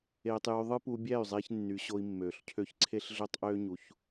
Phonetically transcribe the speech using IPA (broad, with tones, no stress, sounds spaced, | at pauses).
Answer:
eː˧ tˤ j y˧ ðˤ ɯ˦ p u˧ bʲ æ˦˨ y̯ zˤ e˧ ç nː y˨˦ ɕ o˧ i̯ mː øː˨ ɬ cʰ ø˦ ç ǀʰ e˦ ɬ ɮ ø˦ tˤ ʔ øː˦ ɲ u˧ ç